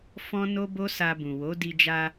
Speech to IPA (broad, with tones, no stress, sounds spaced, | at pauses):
f ɔ̃˦ n o˦ b o˦ s a˧ b ũ˨ w o˨˦ d i˧ d͡ʒ a˧